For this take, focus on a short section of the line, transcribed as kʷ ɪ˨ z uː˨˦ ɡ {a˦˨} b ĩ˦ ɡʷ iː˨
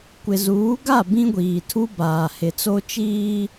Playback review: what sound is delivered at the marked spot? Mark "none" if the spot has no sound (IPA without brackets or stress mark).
a˦˨